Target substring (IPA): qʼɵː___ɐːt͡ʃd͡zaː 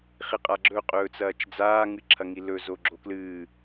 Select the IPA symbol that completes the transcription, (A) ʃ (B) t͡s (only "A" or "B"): B